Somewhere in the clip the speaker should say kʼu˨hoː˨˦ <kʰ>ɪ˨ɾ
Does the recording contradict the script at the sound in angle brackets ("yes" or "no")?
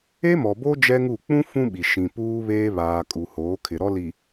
no